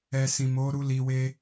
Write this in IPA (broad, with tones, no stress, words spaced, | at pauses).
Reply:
ɛ˨sĩ˨ mo˨˦ɾu˧ li˧we˦